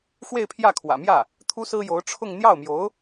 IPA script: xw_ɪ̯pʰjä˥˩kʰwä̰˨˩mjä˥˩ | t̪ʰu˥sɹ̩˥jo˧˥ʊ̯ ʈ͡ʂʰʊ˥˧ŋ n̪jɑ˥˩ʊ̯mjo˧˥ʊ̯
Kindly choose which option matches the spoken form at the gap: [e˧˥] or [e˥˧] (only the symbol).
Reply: e˥˧